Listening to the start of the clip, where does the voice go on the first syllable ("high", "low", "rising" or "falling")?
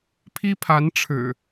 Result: high